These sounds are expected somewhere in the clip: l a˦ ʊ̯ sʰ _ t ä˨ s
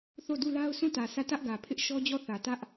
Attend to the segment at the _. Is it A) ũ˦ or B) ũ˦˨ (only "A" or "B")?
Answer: B